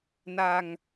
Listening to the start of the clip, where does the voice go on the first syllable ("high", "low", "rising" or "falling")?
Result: low